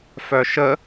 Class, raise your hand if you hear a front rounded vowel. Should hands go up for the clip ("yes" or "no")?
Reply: yes